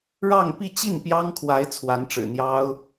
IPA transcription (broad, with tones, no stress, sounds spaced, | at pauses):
ɻ ɑ˥˧ ŋ p i˥˧ t͡ɕ i˥˩ n p j ɑ˥ ŋ kʰ w a˧˥ ɪ̯ t͡sʰ w a˧˥ n ʈ͡ʂ ɻ̩˨˩ n̪ j ɑ˥ ʊ̯